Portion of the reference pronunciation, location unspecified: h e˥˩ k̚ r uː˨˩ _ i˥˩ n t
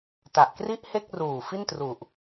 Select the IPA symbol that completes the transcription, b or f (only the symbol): f